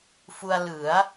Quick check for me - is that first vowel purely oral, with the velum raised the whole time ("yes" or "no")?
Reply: yes